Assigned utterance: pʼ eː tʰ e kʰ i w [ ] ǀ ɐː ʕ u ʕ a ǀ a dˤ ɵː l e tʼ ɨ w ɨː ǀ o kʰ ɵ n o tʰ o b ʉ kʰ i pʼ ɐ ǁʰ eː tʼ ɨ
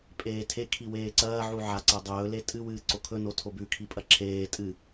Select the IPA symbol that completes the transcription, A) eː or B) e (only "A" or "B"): A